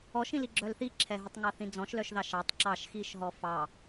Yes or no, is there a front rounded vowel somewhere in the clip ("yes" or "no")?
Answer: yes